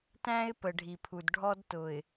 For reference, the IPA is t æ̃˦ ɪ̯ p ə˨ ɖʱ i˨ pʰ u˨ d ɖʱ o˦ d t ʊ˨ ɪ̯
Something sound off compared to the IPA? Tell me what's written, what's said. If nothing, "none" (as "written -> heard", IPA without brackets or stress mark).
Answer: o˦ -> ɔ˦